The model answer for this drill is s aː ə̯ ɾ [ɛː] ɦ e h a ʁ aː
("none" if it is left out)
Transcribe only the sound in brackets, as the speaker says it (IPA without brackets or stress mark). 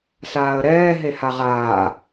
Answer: ɛː